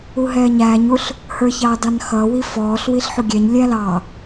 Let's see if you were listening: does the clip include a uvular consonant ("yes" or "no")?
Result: no